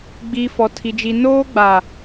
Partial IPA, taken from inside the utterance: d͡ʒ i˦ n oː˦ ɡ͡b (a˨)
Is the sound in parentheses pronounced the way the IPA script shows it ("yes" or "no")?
yes